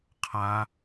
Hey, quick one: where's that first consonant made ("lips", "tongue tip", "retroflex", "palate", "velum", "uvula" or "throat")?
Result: uvula